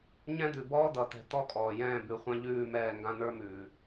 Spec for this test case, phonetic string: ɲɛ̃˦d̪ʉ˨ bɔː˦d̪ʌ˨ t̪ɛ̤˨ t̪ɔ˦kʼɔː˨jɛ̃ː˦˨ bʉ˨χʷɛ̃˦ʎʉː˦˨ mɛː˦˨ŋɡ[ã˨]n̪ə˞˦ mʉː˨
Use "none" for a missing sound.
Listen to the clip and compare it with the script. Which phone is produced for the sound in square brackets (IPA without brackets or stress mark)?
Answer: ã˦